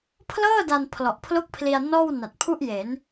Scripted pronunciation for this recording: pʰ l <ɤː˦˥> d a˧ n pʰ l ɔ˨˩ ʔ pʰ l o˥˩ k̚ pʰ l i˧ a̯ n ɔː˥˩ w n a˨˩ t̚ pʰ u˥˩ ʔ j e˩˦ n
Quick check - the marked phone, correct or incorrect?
incorrect: ɤː˥˩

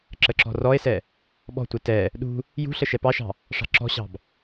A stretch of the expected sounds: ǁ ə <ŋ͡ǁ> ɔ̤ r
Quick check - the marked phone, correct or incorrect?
incorrect: ǁ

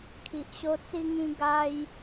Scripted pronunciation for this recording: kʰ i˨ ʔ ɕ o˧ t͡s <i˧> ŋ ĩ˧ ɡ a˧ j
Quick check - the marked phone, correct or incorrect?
correct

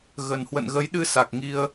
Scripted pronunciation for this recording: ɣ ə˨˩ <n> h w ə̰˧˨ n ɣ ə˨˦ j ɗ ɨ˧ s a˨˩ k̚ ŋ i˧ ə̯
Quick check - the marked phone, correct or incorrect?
correct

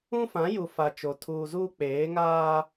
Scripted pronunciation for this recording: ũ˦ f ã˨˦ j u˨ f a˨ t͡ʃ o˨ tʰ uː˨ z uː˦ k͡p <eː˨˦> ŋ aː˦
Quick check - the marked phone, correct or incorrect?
correct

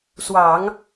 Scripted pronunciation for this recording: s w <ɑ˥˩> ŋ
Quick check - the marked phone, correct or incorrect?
incorrect: ɑ˨˩˦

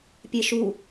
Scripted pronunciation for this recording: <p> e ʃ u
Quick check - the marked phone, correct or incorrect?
incorrect: pʲ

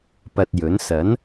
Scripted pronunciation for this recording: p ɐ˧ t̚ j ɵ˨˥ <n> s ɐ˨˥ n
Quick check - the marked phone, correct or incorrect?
correct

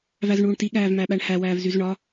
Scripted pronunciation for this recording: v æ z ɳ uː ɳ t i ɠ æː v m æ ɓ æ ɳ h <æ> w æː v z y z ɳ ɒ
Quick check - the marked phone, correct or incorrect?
correct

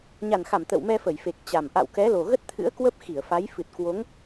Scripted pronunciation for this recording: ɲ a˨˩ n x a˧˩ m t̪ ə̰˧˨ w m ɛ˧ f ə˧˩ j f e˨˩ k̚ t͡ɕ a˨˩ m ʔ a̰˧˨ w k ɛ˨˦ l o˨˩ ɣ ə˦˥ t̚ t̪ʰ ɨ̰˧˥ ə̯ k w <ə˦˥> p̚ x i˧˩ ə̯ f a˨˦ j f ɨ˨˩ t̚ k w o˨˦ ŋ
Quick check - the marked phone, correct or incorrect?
correct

